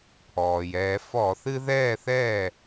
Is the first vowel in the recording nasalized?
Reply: no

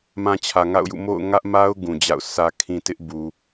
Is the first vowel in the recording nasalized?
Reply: yes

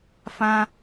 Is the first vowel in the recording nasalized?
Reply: yes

